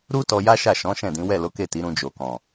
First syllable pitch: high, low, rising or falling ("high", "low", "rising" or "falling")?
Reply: high